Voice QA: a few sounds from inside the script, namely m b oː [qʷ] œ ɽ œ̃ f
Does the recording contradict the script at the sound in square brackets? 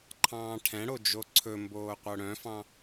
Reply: no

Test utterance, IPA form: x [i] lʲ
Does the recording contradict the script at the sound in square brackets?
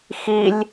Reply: no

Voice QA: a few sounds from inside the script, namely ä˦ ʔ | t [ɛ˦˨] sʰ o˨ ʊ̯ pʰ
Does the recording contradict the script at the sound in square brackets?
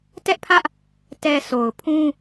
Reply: yes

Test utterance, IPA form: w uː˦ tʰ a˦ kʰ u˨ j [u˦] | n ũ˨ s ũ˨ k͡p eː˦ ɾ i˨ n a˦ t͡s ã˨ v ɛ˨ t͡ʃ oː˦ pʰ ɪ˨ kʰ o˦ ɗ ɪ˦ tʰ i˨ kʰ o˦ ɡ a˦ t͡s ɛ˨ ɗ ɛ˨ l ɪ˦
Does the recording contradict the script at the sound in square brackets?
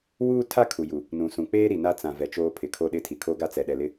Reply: yes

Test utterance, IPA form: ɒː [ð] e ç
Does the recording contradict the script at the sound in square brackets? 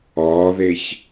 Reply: no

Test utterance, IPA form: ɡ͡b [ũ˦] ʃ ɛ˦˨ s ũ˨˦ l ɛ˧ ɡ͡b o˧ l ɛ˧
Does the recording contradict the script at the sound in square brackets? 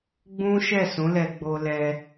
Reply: no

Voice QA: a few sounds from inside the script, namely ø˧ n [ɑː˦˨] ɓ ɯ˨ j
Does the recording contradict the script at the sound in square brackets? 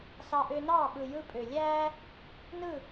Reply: no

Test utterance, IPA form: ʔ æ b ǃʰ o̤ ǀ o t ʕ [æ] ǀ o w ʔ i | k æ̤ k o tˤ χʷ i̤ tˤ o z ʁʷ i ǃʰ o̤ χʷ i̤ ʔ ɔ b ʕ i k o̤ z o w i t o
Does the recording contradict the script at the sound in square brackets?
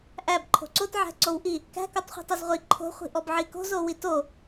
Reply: yes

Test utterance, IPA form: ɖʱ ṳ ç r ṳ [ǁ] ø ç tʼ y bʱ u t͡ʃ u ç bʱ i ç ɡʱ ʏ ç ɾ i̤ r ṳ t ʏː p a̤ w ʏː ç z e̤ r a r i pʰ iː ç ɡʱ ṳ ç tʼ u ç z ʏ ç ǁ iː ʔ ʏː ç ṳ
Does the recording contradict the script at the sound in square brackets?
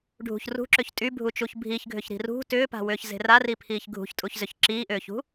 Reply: no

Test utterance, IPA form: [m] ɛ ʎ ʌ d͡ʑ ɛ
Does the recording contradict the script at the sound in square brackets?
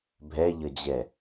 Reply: yes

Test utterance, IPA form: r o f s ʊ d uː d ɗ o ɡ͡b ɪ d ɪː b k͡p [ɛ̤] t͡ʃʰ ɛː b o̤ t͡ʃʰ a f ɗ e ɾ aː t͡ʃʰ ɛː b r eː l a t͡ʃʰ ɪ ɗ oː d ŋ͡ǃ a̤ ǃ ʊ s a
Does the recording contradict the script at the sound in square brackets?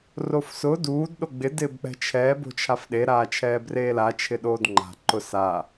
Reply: no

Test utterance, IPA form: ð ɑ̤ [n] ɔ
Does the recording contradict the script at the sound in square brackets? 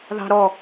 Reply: yes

